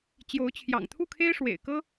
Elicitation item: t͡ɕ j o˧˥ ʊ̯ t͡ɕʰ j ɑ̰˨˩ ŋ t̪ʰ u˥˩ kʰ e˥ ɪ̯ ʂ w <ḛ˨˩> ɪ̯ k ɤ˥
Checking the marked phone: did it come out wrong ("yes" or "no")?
no